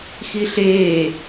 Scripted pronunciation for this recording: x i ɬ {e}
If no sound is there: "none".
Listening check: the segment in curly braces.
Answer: eː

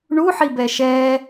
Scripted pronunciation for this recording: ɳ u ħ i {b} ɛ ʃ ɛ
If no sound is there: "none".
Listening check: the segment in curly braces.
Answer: b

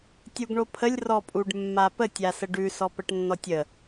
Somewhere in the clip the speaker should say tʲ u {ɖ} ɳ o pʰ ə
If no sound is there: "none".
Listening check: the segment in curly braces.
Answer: ɡ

